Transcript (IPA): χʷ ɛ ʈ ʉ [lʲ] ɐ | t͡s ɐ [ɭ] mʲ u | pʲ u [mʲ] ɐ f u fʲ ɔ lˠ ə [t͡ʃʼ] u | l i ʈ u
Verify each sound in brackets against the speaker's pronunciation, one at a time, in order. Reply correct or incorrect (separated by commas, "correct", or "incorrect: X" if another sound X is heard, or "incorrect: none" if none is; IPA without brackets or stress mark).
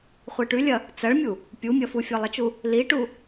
correct, correct, correct, incorrect: t͡ʃ